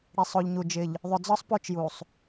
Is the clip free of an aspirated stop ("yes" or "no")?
yes